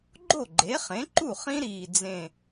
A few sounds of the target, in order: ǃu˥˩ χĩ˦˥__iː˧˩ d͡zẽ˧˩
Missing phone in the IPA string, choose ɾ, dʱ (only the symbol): ɾ